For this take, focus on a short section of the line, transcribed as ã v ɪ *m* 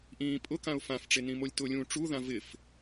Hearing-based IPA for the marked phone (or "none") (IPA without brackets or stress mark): f